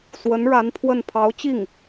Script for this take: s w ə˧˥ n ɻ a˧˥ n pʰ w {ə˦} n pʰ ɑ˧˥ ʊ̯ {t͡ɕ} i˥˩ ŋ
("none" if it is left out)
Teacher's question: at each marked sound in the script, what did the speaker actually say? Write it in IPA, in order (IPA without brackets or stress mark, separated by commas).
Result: ə˥˩, t͡ɕ